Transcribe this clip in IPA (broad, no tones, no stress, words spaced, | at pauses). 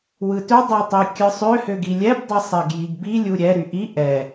wɯtø dˤɛtˤikʲɯsˤø høɡilʲɛb dˤisˤɛɡjiɡbi lʲuɾʲɛ ɾyʔi ʔɛ